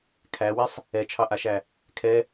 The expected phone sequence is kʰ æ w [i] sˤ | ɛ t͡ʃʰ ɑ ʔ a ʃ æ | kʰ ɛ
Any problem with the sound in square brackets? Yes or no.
no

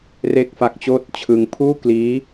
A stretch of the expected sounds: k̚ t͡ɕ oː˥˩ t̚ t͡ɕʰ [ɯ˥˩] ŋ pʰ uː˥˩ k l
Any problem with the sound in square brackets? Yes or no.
yes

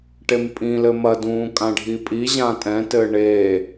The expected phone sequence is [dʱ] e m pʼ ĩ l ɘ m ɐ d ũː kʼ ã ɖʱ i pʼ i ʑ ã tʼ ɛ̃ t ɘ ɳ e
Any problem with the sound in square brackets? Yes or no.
yes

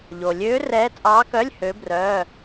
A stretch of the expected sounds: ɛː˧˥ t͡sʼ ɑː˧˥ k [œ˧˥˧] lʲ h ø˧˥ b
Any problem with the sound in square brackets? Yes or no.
no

